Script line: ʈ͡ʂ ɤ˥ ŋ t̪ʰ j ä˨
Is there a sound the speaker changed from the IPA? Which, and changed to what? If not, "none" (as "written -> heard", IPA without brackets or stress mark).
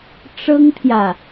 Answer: none